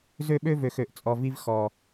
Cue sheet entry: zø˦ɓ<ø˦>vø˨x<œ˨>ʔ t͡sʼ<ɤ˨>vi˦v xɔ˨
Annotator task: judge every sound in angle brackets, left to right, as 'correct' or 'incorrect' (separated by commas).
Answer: correct, incorrect, incorrect